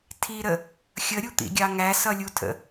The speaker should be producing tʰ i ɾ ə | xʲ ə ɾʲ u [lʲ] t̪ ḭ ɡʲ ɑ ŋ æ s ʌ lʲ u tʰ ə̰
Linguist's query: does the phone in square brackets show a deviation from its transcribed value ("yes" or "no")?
yes